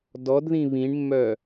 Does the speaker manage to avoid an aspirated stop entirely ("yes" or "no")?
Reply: yes